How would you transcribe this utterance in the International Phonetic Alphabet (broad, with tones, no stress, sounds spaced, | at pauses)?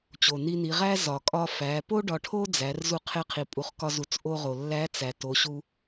t͡ɕ o˩ n i˧ n i˩˧ ʁ æ˥ z ɒ˩ kʼ ɒ˧ f æ˩˧ p o˥ ɖ ɒ˧ ʈʰ o˥ d͡z æ˩˧ r z u˧ qʰ e˧ qʰ i˩ pʼ u˩˧ χ k ɒ˧ z u˩˧ t͡s ʔ o˧ ʁ o˩ lː æ˧˥ t͡s æ˩ t o˩˧ ɕ u˧